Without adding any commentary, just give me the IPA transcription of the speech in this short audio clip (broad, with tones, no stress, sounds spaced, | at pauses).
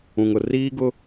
ũ˨ ŋ ʊ˨ r iː˦ ɡ ʊ˦